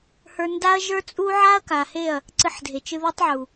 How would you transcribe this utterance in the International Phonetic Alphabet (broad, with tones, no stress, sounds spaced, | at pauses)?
h ə˞˧ n d a˦ ɐ̯ ʒ ə˞˦ t͡sʼ u˦ ʕ a˦ ɐ̯ k a˨ h e˦˨ ɐ̯ | ǀ ɨ˧ ħ dʱ e˨ t͡ʃ ɨ˧ ð e˦ tˤ ʕ u˨